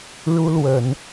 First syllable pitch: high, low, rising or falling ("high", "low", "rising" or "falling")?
high